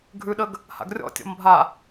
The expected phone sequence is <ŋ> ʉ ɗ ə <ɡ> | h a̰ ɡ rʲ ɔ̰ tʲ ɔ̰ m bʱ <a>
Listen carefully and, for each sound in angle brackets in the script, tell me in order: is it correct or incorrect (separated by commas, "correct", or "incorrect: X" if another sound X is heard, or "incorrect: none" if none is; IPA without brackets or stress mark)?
incorrect: ɡʱ, correct, correct